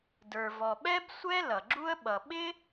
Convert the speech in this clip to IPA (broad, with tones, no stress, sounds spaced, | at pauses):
d ə˞˩ v ɔ˩ ɓ ɛ˥ b sʷ ɛ˥ l ʌ˩ ɡ͡ǁ u˥ ə̯ ɓ ʌ˩ ɓ ɪ˥